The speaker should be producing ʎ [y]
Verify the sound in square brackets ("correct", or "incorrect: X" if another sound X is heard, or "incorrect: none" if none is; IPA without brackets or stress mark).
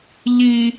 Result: incorrect: i